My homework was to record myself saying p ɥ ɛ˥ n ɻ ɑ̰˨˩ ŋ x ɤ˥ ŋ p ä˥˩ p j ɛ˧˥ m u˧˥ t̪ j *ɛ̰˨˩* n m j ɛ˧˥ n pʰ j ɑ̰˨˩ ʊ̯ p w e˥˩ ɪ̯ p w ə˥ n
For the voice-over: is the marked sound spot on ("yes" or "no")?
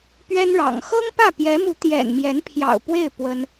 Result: yes